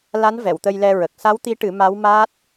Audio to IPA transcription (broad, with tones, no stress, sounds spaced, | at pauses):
l a˧˥ n v ɛ˨˩˨ w t̪ ə˧ j l ɛ˧ ɹ ə˨˩ k̚ s a˧˥ w t̪ i˧˥ ʈ ɨ˨˩˦ m a˧˥ w m aː˦˥ t̚